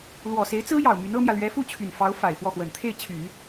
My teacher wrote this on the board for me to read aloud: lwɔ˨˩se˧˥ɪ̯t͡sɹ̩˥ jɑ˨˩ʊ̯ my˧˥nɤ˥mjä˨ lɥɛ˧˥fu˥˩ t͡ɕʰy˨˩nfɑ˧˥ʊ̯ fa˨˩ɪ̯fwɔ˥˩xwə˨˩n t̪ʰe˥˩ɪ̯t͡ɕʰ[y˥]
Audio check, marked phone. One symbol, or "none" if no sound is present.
y˨˩˦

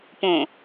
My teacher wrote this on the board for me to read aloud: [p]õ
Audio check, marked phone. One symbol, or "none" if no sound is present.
p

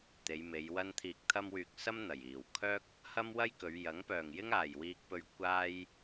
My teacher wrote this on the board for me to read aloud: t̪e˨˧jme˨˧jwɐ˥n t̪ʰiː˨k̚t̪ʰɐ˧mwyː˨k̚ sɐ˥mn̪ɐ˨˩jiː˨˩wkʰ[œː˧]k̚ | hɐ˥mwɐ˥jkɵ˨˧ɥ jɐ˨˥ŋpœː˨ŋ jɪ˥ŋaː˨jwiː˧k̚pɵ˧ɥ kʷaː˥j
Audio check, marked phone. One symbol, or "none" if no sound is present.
œː˥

